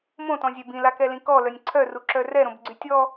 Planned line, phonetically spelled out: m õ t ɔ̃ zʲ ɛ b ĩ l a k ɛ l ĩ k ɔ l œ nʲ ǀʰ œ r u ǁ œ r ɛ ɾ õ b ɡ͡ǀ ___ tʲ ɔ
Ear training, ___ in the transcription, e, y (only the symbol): y